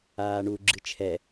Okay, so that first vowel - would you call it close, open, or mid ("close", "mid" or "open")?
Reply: open